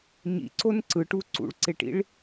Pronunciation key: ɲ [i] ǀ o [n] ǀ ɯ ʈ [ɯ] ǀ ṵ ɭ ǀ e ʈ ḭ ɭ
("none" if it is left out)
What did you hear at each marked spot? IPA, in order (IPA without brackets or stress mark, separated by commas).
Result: ḭ, n, u